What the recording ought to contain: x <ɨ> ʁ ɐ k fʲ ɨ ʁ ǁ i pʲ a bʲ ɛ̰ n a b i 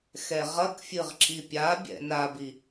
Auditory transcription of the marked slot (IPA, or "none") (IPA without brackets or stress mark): ɛ